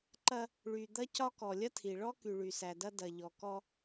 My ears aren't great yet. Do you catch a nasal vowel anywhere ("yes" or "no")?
no